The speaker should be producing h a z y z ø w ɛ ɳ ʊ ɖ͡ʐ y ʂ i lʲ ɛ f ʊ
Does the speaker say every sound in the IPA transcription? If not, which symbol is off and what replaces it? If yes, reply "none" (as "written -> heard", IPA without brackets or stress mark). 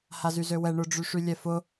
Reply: i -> y